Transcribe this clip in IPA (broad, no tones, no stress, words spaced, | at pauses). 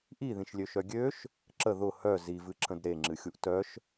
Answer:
ʔiðĩʃlʲøʃœ ɡʲøʃ | ǁə ðʊ hœ zivɨǁə̃d ɾeŋ͡ǁɨxʲuʔ tœʃ